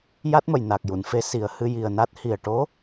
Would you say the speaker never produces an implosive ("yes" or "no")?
yes